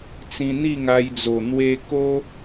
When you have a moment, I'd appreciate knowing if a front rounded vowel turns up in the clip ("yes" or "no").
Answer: no